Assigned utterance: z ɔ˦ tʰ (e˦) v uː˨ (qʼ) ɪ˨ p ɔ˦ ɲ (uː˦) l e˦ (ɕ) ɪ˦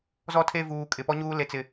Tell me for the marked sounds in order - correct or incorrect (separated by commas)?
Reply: correct, incorrect, correct, incorrect